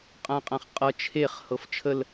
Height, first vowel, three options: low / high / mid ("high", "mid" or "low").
low